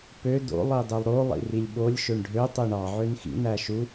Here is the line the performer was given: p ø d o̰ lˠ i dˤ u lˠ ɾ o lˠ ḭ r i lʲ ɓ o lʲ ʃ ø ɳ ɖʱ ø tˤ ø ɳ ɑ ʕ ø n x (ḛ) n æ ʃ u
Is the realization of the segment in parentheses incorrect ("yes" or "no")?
yes